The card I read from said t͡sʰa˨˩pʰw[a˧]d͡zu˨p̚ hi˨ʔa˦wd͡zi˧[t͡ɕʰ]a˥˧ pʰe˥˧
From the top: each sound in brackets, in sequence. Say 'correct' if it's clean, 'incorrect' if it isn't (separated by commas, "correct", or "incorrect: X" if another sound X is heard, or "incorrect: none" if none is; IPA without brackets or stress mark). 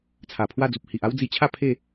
incorrect: a˥˧, correct